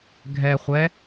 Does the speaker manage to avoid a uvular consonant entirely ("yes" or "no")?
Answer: no